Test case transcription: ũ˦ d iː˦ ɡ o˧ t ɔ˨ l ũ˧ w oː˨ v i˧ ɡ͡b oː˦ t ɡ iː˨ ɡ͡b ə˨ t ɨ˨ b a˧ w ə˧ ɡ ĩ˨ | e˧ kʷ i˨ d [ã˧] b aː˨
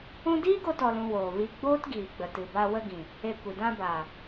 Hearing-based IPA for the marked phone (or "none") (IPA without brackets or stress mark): ã˧